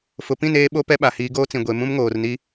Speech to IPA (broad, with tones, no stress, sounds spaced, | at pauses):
f ʊ˨ p ĩ˦˨ n eː˦ ɓ o˦ p ɛ˦ ɓ a˨ h iː˨˦ ɡ oː˦ t͡s ĩ˨ ɡʷ e˨ m ũ˦ m ŋ oː˨ r n i˦